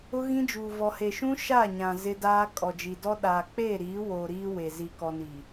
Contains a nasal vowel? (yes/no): yes